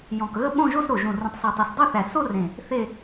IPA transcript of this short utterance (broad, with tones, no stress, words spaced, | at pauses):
jɔ̃˨˩kɣə˥˧ ɓõ˥˧ʒo˥˧sɾo˨˩ ʒũ˨˩rũ˨˩tˤso˨˩tˤu˨˩s dˤʏ˥˧θæ˨˩ so˥˧rẽ˨˩ | θe˥˧